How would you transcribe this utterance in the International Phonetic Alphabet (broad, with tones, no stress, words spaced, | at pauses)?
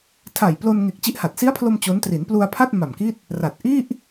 tʰa˨˩j plo˧nŋe˨˩k̚ t͡ɕi˦˥ʔha˨˩t̚ si˦˥a̯pʰlo˧m t͡ɕo˦˥n tri˩˦n plu˧a̯ pʰa˥˩t̚ ma˨˩mki˥˩t̚ | ra˨˩t̚ ʔi˥˩ʔ